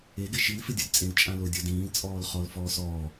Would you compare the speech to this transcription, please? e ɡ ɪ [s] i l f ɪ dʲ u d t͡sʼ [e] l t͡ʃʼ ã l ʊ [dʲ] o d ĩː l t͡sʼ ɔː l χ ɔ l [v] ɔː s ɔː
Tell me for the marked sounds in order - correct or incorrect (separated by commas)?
incorrect, incorrect, correct, incorrect